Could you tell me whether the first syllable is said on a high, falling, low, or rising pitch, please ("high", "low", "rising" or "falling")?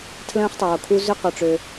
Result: high